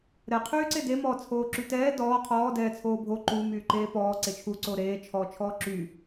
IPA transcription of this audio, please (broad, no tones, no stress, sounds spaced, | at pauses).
ɾ ɛ qʰ yː ǀ e d e m ɔː t͡sʰ oː ǁ y t ɛː d ɔː qʰ ɔː d ɛː t͡sʰ oː bʱ o ǃ u m yː ǃ eː p ɔː ǀ e t͡ʃʰ u ǀ oː ɾ eː t͡ʃʰ ɔː t͡ʃʰ ɔː ǁ y